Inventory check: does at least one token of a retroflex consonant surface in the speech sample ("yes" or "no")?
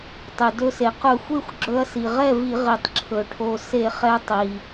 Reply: yes